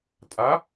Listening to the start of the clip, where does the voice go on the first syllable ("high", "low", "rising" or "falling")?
rising